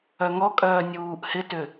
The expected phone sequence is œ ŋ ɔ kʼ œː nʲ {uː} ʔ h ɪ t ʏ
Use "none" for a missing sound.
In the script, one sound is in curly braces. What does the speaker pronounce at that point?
uː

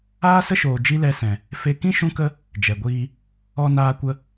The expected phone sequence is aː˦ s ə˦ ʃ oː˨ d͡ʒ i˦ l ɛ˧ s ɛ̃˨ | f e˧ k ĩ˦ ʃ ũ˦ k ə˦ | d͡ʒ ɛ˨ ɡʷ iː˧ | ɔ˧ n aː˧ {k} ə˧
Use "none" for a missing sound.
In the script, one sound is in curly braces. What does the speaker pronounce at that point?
kʷ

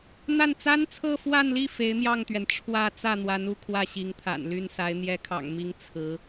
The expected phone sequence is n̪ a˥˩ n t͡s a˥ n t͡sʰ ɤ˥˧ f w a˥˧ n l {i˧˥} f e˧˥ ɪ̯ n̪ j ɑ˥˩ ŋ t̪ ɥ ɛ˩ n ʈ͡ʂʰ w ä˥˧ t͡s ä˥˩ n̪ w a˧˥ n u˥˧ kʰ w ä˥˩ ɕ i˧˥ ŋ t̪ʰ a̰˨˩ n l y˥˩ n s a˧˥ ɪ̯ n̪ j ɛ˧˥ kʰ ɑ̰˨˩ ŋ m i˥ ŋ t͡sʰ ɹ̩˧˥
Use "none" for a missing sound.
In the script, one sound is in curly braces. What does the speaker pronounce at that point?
i˥˩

